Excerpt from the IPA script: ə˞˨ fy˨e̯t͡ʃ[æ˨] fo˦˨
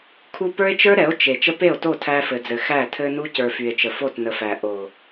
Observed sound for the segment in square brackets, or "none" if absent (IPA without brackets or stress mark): ə˨